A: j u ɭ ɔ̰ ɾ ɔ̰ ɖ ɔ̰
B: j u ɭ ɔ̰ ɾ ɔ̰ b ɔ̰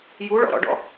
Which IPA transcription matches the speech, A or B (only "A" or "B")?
A